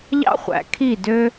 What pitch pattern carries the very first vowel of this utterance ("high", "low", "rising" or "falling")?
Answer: high